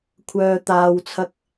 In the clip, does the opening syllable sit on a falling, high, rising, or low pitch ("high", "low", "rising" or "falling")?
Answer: low